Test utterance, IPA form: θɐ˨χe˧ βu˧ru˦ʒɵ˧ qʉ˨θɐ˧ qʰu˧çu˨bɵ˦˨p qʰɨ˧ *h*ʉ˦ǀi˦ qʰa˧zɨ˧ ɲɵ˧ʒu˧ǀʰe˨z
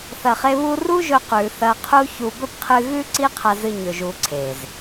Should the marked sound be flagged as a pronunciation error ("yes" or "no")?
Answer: yes